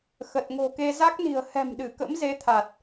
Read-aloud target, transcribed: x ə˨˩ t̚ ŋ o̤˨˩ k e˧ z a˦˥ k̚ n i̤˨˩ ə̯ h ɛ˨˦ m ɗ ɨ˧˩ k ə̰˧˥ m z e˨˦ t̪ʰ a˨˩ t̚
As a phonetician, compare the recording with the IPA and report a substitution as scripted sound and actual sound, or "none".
ɛ˨˦ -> ɛ̤˨˩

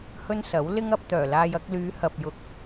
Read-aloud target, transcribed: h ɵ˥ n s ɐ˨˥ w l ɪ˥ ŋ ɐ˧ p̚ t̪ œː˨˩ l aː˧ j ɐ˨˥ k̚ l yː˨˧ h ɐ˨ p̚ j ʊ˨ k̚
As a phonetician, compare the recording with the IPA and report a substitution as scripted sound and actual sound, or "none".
ʊ˨ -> ʊ˨˥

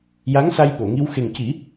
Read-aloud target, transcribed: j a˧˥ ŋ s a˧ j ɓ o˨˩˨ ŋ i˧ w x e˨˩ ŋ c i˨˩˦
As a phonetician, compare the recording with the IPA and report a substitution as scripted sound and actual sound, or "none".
none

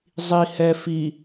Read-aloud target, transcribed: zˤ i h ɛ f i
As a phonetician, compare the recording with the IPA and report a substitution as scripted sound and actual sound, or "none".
none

